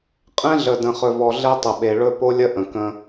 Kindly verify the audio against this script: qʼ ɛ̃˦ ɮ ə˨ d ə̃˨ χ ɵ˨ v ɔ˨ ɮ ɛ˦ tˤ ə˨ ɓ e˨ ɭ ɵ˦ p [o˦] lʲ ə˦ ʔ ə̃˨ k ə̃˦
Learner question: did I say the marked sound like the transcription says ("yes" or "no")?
yes